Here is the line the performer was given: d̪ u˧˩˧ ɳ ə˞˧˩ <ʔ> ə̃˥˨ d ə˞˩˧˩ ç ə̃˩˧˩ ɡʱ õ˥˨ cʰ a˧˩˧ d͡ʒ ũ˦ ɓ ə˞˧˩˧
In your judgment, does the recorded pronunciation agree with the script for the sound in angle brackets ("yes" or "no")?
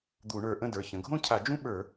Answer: yes